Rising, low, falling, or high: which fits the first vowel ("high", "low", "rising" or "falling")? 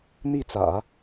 falling